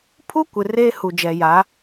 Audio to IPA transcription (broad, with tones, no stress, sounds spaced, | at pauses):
pʰ u˦ kʷ ɪ˨ r eː˦ h u˨ d͡ʒ ɛ˨ j a˨˦